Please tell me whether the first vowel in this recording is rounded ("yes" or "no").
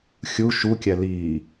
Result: yes